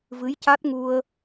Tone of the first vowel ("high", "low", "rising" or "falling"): rising